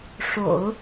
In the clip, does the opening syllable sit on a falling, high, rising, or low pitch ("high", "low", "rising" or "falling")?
low